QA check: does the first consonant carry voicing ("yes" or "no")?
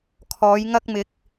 no